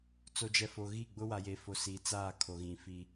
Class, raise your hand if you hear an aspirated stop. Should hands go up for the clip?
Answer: yes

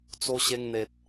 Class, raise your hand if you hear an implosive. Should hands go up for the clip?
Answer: no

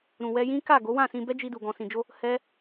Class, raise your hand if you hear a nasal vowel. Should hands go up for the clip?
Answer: yes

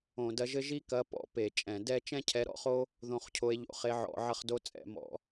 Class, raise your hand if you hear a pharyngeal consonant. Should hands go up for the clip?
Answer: yes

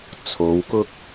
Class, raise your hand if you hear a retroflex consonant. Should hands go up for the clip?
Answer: no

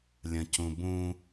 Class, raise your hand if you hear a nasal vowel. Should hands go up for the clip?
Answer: yes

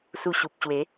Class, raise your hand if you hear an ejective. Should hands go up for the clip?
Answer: no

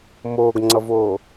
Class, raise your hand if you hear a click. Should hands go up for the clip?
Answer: yes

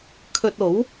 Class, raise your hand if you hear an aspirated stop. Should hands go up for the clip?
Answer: yes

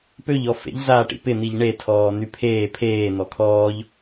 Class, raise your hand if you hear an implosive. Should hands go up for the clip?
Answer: no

